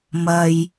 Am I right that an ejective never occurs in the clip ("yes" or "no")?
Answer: yes